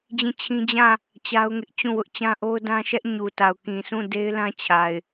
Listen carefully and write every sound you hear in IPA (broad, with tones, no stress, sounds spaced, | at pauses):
d͡ʑ ĩ˦˨ t͡ɕʰ ĩ˦ d͡ʑ ã˦˨ | t͡ɕ a˦ ʊ̯ ŋ ɪ˦ ʔ t͡ɕ ũ˦˨ w ʊ˦ ʔ t͡ɕ ã˦ ʔ o˦ ʊ̯ d ã˦ ʃ ɛ˦ ʔ ɲ u˨ t a˨ ʊ̯ k ĩ˨ s ũ˦˨ d e˦ ɪ̯ l ã˦ t͡ɕʰ a˨ ɪ̯